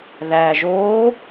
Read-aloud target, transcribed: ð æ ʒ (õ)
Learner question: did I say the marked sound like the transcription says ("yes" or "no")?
no